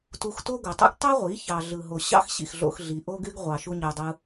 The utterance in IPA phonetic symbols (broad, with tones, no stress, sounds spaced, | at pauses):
t u˧ x t o˦ ɡ o˨ tˤ ḭ˦ ɡ tˤ u˦ ʁʷ i˨˦ ç ɑ˧ ɮ ɯ˧ ɦ o˧ ɕ ɑ̰˦ x ɕ ḭ˨ x ɮ o̰˧ x ɮ i˨ ʔ o˦ ɡ y˦ ɡ ʁʷ ɑ˧ ʃ u˦ ɲ ø˧ dˤ ɯ˦